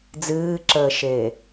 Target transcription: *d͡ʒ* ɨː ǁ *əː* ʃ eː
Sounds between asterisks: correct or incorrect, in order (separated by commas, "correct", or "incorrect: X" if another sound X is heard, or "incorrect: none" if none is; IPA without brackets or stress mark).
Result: incorrect: d͡z, correct